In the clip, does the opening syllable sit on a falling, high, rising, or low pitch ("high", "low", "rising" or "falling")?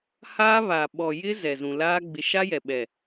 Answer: high